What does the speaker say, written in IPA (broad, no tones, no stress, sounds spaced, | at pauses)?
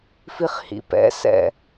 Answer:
f i χ h ḭ p ɛ̰ s ɛ̰